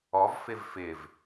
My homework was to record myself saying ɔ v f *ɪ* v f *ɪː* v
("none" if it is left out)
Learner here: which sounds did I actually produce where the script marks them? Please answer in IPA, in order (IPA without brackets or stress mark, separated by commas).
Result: ɪ, ɪː